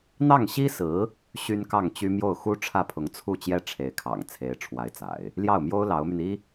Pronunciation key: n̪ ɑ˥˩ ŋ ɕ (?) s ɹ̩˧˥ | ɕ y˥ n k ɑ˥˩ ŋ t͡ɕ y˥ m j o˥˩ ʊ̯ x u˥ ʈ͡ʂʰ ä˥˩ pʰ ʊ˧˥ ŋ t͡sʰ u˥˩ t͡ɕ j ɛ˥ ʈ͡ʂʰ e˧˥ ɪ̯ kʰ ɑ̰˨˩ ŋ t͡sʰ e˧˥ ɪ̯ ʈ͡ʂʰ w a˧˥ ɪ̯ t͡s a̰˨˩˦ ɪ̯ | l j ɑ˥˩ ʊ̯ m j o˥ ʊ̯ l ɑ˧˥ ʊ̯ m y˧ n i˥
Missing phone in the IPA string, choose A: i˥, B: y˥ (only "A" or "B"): A